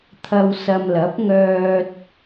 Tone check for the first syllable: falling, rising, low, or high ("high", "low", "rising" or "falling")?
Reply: low